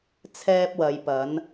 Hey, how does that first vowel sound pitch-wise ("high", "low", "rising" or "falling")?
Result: high